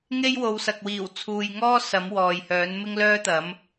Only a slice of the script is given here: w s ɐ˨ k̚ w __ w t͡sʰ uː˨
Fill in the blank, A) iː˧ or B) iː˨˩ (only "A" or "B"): B